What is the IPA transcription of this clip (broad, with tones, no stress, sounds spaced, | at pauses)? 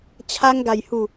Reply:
t͡ɕʰ a˧ ŋ ɡ a˨˩ j h u˨˩